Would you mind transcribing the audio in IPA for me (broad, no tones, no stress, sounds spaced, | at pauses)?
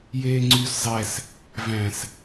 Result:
j eː ŋ͡ǀ yː s zˤ ɛ s | v æ̃ s